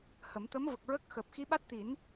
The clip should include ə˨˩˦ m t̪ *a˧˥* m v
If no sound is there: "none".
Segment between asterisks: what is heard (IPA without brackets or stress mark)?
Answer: ə˧˥